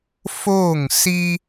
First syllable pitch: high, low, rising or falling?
falling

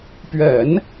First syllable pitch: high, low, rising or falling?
low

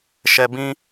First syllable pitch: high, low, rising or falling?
low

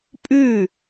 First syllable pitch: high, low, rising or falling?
falling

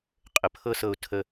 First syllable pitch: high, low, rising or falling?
low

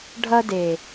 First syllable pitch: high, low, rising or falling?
high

